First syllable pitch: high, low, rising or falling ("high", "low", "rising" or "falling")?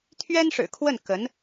high